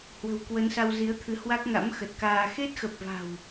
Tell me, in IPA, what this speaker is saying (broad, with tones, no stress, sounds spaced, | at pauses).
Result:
h w ə̤˨˩ w k w ə˨˦ n s a˧ w z i˨˦ ə̯ t̪ʰ ɨ˨˦ h w a˦˥ k̚ ŋ a̰˧˥ m x ə˨˩ t̚ k aː˧ x e˦˥ t̚ x ə˨˩ p̚ v a̤˨˩ w